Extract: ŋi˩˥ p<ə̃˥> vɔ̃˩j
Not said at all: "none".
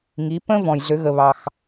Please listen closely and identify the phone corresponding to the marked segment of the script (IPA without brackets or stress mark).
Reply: ə̃˥